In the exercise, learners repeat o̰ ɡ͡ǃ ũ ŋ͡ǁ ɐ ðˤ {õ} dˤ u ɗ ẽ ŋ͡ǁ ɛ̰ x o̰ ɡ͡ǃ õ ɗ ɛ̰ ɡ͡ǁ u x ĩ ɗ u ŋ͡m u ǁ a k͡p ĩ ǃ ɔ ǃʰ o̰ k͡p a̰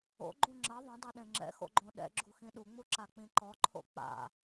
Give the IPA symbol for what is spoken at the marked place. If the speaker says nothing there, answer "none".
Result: ũ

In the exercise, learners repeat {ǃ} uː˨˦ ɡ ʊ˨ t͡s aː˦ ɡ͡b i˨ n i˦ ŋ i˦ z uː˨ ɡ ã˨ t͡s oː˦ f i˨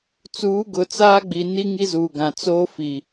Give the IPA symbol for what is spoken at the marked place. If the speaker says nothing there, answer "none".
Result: t͡s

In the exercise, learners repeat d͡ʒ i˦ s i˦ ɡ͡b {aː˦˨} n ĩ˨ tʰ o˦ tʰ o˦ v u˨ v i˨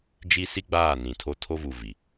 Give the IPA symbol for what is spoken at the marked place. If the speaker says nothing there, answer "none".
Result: aː˦˨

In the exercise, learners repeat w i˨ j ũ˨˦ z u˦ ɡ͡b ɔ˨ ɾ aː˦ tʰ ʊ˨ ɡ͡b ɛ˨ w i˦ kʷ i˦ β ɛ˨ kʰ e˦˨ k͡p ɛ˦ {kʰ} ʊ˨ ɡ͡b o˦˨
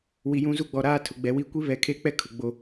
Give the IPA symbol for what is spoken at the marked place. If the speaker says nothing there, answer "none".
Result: kʰ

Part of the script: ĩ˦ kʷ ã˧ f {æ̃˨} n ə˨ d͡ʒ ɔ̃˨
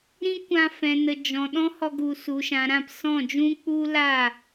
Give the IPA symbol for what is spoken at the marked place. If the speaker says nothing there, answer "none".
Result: ɛ̃˨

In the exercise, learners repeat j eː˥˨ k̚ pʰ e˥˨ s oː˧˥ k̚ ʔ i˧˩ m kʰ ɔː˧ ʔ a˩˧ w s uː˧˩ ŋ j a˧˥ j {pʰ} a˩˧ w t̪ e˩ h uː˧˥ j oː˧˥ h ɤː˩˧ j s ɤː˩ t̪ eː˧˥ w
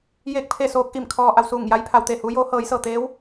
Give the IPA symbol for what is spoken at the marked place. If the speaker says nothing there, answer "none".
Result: pʰ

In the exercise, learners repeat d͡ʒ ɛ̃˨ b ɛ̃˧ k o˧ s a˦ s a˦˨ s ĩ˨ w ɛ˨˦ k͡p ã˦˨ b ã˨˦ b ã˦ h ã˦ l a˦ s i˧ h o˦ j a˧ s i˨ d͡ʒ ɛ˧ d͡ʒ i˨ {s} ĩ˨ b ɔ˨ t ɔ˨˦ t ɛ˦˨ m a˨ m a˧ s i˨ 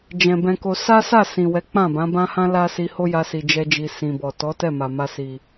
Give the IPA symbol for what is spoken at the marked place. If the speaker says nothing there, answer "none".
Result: s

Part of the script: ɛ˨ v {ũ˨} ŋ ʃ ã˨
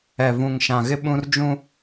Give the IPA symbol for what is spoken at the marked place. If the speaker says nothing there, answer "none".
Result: ũ˨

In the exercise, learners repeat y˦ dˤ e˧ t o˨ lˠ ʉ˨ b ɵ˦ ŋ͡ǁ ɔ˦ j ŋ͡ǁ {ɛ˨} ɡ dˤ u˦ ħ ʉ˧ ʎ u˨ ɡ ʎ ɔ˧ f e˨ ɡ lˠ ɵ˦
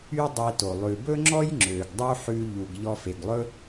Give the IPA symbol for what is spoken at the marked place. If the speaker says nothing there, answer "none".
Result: ø˨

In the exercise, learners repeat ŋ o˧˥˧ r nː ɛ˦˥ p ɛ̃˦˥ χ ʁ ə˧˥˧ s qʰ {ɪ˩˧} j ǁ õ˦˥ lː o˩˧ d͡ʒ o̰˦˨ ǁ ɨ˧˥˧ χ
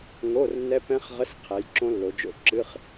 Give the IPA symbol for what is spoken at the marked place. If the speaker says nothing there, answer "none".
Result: ɛ˩˧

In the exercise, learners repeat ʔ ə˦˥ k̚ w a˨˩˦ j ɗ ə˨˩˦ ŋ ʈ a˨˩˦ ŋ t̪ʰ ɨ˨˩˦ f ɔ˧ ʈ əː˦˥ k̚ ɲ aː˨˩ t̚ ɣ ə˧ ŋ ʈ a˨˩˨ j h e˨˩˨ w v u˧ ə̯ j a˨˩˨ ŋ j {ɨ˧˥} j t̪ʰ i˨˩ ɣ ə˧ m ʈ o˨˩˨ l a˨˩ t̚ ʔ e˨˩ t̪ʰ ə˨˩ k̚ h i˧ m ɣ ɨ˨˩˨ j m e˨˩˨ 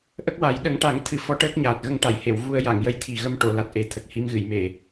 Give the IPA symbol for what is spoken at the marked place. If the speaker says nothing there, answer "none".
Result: ə˧˥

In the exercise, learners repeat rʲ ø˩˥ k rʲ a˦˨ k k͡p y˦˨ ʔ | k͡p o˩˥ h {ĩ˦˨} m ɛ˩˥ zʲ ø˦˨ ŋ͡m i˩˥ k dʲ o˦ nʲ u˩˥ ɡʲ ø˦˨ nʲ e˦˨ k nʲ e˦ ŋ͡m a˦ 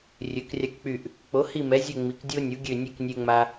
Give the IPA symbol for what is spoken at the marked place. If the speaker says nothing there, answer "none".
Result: i˦˨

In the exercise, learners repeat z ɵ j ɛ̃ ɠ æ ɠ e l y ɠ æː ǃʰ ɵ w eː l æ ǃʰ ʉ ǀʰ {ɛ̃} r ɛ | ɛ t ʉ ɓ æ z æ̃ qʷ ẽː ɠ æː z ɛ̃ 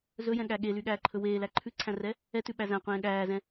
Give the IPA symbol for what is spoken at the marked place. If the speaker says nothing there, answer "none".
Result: æ̃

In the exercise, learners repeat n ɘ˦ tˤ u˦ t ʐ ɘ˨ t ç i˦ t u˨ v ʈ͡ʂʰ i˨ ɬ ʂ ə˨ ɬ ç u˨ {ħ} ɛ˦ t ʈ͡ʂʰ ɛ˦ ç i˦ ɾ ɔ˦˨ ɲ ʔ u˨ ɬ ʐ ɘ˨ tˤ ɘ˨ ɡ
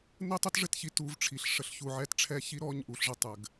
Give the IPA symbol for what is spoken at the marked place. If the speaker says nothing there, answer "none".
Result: ʕ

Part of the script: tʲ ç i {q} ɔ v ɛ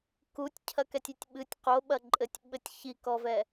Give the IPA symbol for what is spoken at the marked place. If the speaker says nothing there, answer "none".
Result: k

